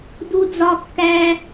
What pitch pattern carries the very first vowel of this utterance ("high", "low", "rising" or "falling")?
high